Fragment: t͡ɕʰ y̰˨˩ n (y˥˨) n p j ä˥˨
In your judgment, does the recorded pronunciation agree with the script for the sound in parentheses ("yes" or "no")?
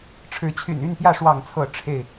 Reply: yes